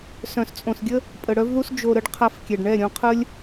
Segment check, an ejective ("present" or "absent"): present